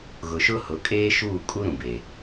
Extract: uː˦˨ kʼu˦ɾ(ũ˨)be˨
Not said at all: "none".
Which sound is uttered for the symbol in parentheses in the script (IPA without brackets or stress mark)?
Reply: ũ˨